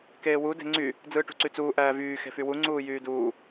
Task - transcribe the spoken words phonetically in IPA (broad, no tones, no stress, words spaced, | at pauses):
keːwu de̤ŋ͡ǀy | d͡zɯːʈṳǀyt͡suː ʔæːvyː xe̤fywu ŋ͡ǀuːjyːduː